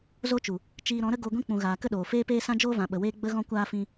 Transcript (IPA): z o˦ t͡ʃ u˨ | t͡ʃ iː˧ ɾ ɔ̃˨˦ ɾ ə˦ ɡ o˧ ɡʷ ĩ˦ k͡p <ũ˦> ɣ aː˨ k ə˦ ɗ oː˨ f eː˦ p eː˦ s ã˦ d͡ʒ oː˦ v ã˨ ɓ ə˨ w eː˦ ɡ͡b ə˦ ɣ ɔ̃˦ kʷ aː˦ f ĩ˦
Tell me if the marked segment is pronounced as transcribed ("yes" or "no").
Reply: no